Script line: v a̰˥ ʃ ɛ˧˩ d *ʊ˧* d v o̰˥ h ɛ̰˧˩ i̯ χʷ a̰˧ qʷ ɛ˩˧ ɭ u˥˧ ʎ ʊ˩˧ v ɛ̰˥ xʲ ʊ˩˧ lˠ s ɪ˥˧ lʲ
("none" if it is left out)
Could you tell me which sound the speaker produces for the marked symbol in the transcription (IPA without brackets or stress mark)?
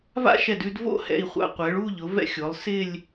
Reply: ʉ˧